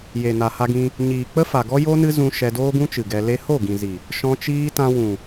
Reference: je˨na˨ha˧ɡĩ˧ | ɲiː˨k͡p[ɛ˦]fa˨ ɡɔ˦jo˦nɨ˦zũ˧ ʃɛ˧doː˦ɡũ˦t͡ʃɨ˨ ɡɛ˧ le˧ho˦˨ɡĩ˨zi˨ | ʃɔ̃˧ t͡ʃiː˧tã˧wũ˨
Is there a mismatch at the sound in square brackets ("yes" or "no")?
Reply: yes